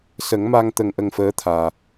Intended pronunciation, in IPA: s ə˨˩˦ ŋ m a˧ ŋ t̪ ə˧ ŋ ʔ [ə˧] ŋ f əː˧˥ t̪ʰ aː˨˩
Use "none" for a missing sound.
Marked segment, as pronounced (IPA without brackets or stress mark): ə˧